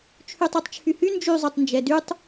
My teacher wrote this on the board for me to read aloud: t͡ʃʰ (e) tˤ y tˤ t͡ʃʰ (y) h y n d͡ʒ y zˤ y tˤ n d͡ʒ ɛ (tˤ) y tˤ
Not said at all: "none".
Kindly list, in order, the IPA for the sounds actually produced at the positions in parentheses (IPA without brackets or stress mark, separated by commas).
y, y, d